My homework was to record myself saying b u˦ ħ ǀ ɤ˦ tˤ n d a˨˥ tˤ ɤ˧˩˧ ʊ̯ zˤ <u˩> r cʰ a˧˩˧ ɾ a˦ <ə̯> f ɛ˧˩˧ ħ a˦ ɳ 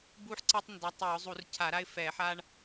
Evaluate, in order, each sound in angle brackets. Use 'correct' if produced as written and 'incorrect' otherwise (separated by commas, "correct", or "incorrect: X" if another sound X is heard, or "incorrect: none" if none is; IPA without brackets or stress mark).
incorrect: u˧˩˧, incorrect: ɪ̯